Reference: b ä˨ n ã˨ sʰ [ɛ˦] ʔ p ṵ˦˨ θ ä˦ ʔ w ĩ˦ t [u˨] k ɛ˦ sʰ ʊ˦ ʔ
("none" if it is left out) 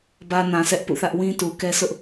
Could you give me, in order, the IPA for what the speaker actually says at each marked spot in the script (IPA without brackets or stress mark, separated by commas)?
ɛ˦, u˨